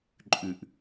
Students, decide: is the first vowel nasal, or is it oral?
oral